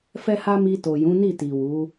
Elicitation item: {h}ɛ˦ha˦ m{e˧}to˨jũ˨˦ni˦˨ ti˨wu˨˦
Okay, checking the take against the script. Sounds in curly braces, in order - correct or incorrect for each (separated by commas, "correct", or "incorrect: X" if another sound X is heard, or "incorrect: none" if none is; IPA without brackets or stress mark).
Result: incorrect: f, incorrect: i˧